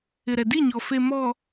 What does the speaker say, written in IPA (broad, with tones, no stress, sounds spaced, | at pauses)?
ɪ˨ ɾ ɛ˨ d i˦˨ ɲ ɔ˨ f e˨ m ɔ˨